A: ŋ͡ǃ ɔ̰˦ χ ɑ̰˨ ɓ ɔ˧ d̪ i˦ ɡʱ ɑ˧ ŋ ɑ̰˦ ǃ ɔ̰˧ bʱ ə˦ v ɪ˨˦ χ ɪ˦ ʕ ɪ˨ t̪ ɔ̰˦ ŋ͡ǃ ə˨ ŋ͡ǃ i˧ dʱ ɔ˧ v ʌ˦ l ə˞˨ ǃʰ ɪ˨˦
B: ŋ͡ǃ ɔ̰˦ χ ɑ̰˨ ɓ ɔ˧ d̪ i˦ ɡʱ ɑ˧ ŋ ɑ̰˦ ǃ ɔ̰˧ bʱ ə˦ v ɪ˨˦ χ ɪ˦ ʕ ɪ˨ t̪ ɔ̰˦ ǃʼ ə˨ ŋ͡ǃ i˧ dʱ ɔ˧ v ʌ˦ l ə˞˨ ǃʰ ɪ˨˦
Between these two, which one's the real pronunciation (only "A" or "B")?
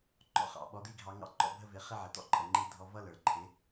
B